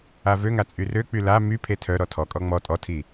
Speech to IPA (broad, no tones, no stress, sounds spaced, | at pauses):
a v ø ŋ a t͡sʼ y r ø k͡p y l a m y pʰ e tʰ œ ɾ ɔ tʰ ɔ kʼ ɔ ŋ͡m ɔ tʼ ɔ tʰ i